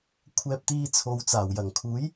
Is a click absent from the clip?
yes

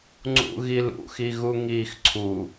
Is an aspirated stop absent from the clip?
no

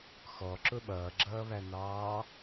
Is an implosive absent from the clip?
no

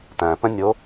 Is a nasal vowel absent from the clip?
no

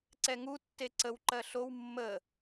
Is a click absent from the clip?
no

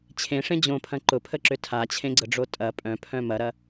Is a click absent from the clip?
no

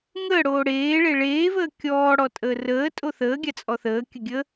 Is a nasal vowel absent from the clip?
yes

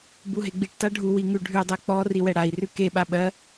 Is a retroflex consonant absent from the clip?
no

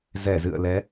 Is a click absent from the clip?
yes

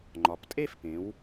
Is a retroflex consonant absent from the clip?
yes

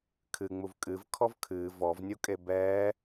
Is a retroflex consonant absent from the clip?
yes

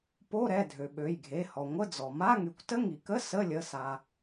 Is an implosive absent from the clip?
no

